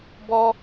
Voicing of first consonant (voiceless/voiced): voiced